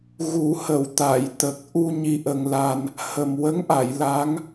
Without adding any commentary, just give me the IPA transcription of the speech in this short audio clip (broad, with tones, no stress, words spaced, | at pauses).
ɣu˨˩˦hə˨˩˨w t̪a˨˩˨jt̪ə˨˩k̚ ʔu˧ ɲi˧ʔə˧ŋla˧n | hə˨˩m wə˧˥ŋʔa˨˩˨j la˧˥ŋ